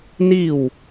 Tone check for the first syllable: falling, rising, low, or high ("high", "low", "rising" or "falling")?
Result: falling